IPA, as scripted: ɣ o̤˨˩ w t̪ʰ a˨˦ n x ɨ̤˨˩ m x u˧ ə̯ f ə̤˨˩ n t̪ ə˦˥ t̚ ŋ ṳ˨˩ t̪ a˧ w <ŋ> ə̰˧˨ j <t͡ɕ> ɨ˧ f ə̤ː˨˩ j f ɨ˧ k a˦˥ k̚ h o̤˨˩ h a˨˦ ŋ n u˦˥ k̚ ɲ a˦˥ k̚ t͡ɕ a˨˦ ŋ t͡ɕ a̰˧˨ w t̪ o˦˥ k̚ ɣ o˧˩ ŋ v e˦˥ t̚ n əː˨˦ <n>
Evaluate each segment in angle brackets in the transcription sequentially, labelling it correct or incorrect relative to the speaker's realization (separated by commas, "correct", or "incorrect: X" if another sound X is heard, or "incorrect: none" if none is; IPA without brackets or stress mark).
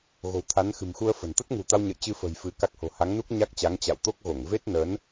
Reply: incorrect: ɲ, correct, correct